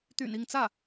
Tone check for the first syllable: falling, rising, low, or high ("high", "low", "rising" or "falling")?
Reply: low